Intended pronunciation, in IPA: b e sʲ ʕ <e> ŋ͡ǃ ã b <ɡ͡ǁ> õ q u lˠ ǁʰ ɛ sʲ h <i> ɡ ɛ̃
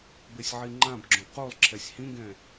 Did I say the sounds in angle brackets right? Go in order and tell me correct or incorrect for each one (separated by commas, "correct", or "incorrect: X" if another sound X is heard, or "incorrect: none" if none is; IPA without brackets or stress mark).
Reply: incorrect: i, correct, incorrect: ĩ